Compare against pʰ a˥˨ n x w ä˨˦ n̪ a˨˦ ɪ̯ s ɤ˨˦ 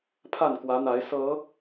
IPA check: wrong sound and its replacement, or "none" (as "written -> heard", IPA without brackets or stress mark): x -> k